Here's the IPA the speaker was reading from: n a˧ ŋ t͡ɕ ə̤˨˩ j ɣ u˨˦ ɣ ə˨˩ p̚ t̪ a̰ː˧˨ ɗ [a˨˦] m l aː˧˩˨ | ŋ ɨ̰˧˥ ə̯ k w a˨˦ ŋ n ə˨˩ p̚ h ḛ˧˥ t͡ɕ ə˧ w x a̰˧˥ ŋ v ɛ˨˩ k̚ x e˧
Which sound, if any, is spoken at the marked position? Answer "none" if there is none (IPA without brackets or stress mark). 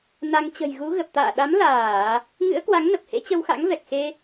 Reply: a˨˦